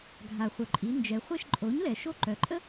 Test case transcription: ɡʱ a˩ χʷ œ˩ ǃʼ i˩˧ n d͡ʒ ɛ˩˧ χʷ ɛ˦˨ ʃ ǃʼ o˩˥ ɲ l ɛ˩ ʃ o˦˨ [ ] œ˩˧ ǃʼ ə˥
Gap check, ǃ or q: ǃ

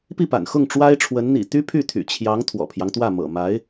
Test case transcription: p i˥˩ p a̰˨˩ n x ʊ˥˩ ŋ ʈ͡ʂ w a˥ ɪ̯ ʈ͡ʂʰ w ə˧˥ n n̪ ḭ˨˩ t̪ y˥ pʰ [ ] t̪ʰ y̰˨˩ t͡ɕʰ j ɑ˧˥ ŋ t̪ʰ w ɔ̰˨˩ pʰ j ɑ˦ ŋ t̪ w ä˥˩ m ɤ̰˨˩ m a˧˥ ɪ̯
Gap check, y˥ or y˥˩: y˥˩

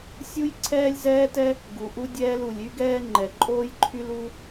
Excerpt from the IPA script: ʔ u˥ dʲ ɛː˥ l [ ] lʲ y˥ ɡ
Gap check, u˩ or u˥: u˩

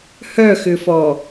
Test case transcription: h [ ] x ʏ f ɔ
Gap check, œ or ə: œ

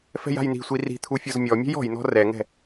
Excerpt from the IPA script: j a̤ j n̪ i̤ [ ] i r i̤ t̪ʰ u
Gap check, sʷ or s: sʷ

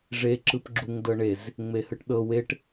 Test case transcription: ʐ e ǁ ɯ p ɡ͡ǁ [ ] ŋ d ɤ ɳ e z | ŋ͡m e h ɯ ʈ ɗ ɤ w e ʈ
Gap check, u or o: u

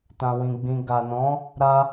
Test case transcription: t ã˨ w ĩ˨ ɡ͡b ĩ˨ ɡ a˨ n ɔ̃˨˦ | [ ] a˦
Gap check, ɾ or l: ɾ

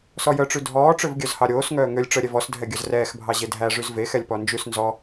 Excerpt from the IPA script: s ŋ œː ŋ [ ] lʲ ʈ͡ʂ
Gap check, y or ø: ø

